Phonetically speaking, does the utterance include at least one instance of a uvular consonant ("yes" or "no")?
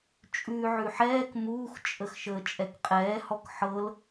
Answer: yes